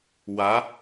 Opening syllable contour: rising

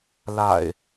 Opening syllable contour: low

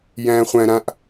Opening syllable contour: low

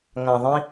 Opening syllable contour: low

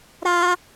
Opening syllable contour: high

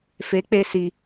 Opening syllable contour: rising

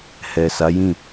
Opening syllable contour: low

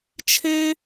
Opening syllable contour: high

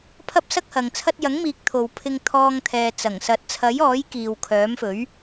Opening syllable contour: high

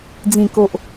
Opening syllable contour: low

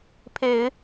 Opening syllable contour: low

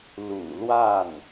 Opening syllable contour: low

